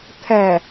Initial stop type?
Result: aspirated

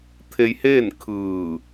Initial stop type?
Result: aspirated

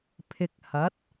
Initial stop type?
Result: aspirated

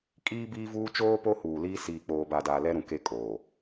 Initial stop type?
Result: ejective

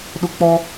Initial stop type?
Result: implosive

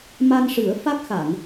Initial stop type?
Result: plain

